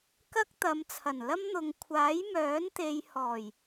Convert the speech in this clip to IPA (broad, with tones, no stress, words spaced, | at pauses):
kɐ˥k̚t̪ɐ˨˧mt͡sʰɐ˨˩n lɐ˥mn̪ʊ˨˧ŋ kʷʰaː˨˥jmœː˨˥nt̪e˨j hɔː˨˩j